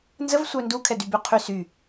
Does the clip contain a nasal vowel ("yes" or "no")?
no